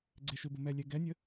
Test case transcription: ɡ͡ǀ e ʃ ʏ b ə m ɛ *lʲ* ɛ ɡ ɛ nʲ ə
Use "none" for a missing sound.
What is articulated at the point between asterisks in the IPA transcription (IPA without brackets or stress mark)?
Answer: lʲ